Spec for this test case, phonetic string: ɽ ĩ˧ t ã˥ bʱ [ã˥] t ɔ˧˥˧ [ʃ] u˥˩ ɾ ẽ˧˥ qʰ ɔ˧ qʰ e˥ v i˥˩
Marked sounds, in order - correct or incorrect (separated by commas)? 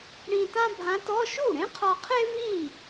incorrect, correct